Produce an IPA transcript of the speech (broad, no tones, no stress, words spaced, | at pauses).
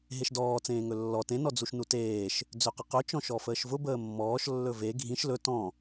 ɦeʃdɔː t͡sẽːŋɵlːɔ tẽ nɔd͡zuʃnuteːʃ | d͡zøqəqɵ t͡ʃɔ̃ʃɔfəːʃvʊ bəːmːɔːʃ lːɵve ɡʱĩʃ lɵ tɔ̃